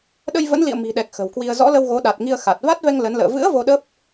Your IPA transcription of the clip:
ɗ ə˧ j v ə̰˧˥ n l ḭ˧˨ ə̯ m i̤˨˩ ɗ ɛ˨˩ k̚ x ə̤˨˩ w k w i˧ ə̯ z ɔ̰˧˥ l ə˧ w ɣ o˨˦ ɗ a˨˩ t̚ ŋ i˧ ə̯ x a˨˩ t̚ v a˦˥ t̚ v ɛ˧ ŋ l ə˨˦ n l ə̰ː˧˨ v ɨ̰˧˥ ə̯ v o˧ ɗ ə˦˥ p̚

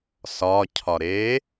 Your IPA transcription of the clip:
s ɒ cʰ ɒ ɾ e

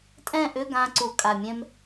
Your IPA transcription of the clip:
tʼ ɛ̃˥˨ ʔ ʏ˧˥˧ ɡ ã˧ ǀ u˧˩˧ kʼ a˨˩ mʲ ɛ̃˧ m

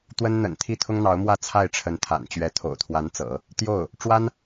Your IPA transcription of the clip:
t̪ w ə˥ n n̪ ə̰˨˩ n t̪ʰ i˥˩ t̪ʰ ʊ˥ ŋ n̪ ɑ˧˥ ʊ̯ m w ä˥˧ t͡sʰ a˥˩ ɪ̯ ʈ͡ʂʰ ə˧˥ n t̪ʰ a̰˨˩ n t͡ɕ ɥ ɛ˧˥ t̪ʰ o̰˨˩ ʊ̯ t̪ʰ w a˧˥ n t͡s ɤ̰˨˩˦ | t̪ j o˥˩ ʊ̯ | ʈ͡ʂ w a˥ n

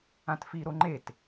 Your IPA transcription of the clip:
ã t f i ɾ o ŋ͡ǃ e t

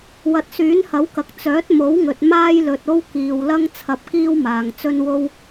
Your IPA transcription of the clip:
w ɐ˨ t̚ s yː˨˥ n h ɐ˨˥ w k ɐ˨ k̚ t͡s œː˨˥ t̚ m o˨˥ w ŋ ɵ˨ t̚ m aː˥ j l ɵ˨ t̚ o˥ w k iː˨ w l ɐ˥ ŋ t͡sʰ ɐ˧ p̚ k iː˥ w m aː˨ ŋ t͡s ɵ˥ n w o˥ w

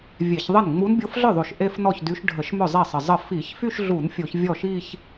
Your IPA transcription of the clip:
vʲ e˧˩˧ ç ðˤ ə˥˩ n ŋ͡m u˧˥ n bʲ o˧˥ f ɮ œ˥˩ ðˤ o˨˩ ʃ ʔ e˥˧ f n ɔ˥˩ ç d y˧˥ ʃ ɖʱ ə˧˩˧ ʃ m œ˥˩ zˤ e˥˩ sˤ ə˨˩ zˤ ə˥˩ f i˧˩˧ ç f y˥˧ ʃ ɮ u˧˩˧ n fʲ o˧˩˧ ç vʲ ɔ˥˩ ʃ i˥˧ ç

